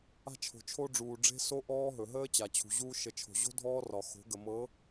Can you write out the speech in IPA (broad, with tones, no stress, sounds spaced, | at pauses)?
a̤˦ t͡ʃʰ o̤˨ t͡ʃʰ o˦ ɖ͡ʐ uː˨ ɖ͡ʐ e̤˦ s o˦ ʔ ɔː˦ ɦ ɵ˨ ɦ əː˦ t͡ɕ a˨ t͡ɕʰ ṳ˨ ʑ uː˦ ʃ ə˨ t͡ʃʰ o̤˨ ʑ o̤˦ dʱ ɔː˦ r ɒ˨ x o̤˨˦ ɡ ə˨ m ɤ˨˦